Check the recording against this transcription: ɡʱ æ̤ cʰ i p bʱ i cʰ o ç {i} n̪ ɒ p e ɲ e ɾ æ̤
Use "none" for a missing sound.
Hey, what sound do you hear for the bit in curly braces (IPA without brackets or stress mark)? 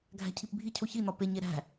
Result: i